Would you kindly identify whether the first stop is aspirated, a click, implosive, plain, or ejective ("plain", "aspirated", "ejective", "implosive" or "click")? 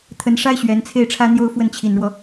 aspirated